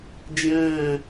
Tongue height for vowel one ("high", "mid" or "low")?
mid